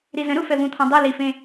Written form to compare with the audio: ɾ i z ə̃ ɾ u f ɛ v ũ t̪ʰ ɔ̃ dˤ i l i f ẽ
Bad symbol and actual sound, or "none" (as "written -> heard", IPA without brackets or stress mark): none